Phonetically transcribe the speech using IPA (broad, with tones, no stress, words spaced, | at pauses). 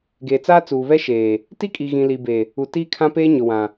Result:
ɡeː˨t͡saː˦t͡suː˨βɛ˦ ʃeː˨ | ti˦kʼi˨ɣĩ˨ li˨be˨ | u˨tiː˦kʰã˦peː˦ ɲʊ˨wã˨